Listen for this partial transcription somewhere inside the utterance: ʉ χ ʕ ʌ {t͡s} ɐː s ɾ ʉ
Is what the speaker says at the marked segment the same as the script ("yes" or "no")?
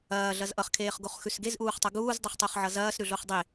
no